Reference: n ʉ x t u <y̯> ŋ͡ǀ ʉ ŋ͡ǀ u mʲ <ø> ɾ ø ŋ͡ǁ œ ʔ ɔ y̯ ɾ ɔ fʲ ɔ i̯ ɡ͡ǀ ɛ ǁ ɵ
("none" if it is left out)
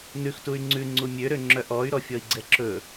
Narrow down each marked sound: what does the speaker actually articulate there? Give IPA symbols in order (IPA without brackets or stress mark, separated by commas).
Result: y̯, ø